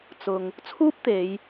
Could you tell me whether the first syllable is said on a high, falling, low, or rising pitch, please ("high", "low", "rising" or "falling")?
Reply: low